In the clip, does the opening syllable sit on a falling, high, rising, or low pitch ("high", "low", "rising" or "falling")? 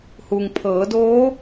low